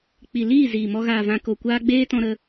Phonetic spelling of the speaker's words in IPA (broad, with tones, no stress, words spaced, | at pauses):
k͡pi˨liː˦˨ ziː˨mɔ˧ ɣaː˨vã˨ko˨kʷaː˧ ɡ͡beː˦tɔ̃˧ɾə˧